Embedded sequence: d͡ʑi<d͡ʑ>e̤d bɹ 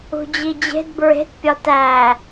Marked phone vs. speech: correct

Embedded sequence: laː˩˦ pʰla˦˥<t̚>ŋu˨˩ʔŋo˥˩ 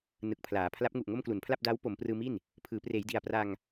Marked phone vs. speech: incorrect: p̚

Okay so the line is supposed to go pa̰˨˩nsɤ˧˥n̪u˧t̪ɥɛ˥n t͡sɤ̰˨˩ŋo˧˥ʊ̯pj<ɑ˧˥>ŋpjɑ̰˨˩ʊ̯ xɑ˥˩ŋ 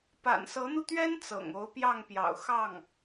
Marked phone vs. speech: incorrect: ɑ˥˩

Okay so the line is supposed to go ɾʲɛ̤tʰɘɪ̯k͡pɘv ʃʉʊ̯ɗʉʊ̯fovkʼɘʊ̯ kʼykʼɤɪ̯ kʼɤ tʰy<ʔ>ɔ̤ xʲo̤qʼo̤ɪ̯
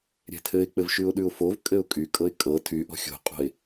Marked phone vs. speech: correct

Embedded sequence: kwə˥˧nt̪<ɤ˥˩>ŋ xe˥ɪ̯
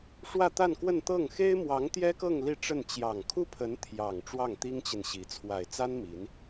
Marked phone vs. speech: correct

